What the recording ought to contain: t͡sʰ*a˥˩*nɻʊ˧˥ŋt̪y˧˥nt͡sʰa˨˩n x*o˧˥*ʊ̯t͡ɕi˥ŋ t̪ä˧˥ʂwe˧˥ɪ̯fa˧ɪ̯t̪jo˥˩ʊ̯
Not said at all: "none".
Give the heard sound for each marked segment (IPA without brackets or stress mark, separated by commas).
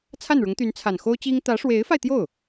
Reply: a˥˩, o˥